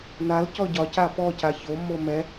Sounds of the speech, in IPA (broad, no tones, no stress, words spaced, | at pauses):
nal cɔɟɒca pɔca çomːo mɛ